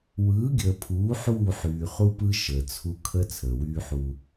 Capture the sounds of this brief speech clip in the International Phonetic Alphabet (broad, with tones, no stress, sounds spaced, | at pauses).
w ɯː˨˦ ɡʲ əː˨ pʰ uː˨˦ ħ uː˦˨ ħ yː˨ χ u˦ p ɯ˦ ʃ əː˨ t͡sʰ u˦ kʰ ə˦ t͡sʰ əː˨ w yː˦ ħ u˦